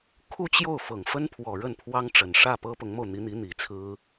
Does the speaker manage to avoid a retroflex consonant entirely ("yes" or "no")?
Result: no